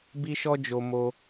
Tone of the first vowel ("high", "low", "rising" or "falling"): high